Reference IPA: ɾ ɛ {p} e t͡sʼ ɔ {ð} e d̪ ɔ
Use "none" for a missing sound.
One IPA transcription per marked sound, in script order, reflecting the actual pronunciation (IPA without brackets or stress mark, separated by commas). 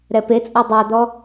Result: p, dˤ